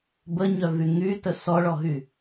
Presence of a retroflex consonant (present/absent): present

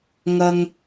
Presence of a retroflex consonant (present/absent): absent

